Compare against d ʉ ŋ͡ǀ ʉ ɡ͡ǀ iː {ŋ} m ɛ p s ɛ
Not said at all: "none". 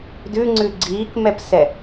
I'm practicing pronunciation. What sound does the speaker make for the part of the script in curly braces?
k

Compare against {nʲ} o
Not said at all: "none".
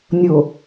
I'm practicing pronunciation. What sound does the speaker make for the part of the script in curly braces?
nʲ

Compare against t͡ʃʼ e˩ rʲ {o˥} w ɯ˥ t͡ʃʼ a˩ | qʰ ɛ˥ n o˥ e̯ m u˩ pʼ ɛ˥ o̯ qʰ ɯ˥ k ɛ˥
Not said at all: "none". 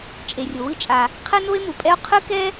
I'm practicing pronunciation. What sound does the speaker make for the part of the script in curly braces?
o˩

